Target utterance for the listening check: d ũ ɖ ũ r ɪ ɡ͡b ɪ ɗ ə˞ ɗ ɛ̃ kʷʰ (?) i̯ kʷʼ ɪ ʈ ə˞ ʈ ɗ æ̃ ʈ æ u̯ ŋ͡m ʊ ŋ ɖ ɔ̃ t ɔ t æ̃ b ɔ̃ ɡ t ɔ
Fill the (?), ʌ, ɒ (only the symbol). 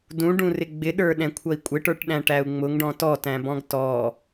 ʌ